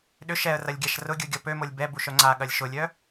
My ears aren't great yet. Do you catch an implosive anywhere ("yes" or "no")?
yes